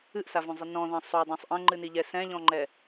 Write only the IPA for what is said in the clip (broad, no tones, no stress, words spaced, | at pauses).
ɨʔsavõzˤɨ nɔ̃ðɐ̃ sˤodˤõsˤ ʔɐ̃ŋ͡ǃɨniʎɛ sɛ̃ʎɔ̃ŋ͡ǃɛ